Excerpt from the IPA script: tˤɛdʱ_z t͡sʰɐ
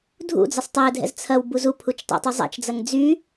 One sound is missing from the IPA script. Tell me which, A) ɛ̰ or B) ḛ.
A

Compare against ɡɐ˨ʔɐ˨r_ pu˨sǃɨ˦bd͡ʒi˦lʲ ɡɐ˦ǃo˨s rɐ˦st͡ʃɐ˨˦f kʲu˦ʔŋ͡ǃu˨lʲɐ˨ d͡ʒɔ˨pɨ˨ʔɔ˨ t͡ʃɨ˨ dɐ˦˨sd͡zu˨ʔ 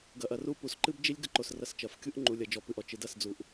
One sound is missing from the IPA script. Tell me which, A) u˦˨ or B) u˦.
A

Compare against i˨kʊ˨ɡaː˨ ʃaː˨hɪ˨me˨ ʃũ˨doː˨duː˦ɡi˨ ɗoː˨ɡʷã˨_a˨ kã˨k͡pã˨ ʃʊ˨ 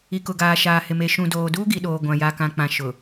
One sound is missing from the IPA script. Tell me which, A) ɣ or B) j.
B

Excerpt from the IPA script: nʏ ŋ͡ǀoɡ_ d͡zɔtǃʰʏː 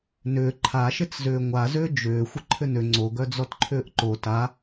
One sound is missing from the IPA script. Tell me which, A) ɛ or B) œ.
B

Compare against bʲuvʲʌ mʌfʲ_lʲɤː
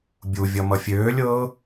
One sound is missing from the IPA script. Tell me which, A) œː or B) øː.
B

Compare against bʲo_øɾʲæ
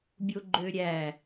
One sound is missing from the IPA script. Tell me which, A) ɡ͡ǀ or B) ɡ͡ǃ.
B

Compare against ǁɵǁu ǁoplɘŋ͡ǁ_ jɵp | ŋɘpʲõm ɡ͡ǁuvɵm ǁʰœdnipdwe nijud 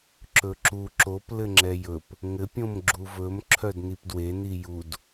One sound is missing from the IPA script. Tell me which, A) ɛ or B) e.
A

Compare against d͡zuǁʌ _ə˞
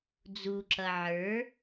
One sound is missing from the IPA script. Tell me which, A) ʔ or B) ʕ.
B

